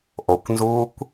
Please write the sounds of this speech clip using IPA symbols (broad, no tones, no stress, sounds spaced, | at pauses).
ʔ o kʷ n z uː kʷ